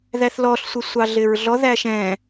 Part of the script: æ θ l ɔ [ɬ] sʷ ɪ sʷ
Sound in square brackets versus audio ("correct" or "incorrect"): correct